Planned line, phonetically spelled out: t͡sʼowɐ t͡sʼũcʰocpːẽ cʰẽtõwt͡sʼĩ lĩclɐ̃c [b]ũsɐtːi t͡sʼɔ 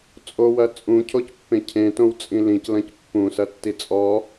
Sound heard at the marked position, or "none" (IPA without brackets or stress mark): pː